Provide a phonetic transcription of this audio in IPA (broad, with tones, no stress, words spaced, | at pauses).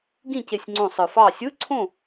ɡĩ˥˨ce˧˩sʲŋ͡ǀõ˧˩ sˤɯ˩fɑ˧˩sʲɯ˧˥˧ǀʰõ˥˨